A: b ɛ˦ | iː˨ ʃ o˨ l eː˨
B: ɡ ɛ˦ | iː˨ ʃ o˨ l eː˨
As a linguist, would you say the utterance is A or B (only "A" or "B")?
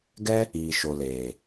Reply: B